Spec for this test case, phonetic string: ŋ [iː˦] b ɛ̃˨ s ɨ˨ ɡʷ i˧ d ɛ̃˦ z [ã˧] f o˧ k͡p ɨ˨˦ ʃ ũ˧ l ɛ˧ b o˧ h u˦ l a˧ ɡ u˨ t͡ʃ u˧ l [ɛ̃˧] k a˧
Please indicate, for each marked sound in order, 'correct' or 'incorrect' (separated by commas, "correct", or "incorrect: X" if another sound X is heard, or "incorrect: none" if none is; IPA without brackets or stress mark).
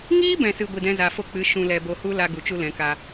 correct, incorrect: a˧, incorrect: ɛ̃˨˦